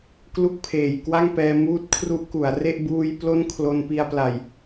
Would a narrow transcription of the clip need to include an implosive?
no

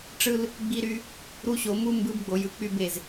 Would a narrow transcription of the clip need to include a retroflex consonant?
yes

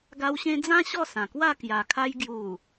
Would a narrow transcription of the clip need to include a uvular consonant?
no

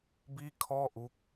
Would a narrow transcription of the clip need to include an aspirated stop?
yes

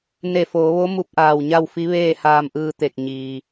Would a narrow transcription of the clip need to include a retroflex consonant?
no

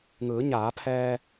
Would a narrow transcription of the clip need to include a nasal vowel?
no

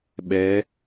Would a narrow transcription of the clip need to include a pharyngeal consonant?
no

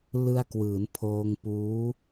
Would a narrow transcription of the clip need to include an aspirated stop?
yes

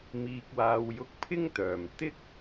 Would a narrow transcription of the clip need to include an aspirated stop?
yes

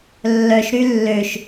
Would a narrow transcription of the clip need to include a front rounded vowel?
yes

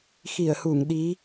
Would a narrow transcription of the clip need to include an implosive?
yes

